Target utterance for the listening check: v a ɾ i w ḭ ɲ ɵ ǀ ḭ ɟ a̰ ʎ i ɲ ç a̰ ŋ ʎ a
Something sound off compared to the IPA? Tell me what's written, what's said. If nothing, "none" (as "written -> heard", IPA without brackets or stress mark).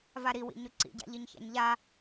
ŋ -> ɲ